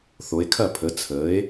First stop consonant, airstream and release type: aspirated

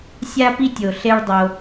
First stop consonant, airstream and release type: plain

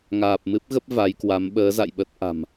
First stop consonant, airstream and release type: plain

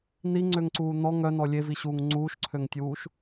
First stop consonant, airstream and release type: click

